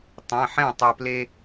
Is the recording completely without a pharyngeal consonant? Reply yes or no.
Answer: no